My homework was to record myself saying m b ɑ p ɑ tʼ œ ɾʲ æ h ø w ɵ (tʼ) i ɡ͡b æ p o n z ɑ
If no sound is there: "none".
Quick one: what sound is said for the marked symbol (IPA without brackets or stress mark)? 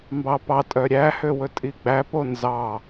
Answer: tʼ